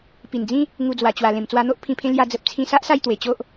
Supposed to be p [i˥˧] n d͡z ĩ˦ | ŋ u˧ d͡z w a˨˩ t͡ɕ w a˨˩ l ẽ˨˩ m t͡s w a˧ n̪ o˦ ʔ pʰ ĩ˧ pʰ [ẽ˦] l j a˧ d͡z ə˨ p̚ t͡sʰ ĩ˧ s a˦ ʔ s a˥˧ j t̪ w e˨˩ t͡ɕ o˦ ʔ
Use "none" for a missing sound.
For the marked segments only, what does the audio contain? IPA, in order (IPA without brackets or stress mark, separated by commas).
i˨˩, ẽ˦